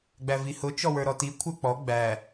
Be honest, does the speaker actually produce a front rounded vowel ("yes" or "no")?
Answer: no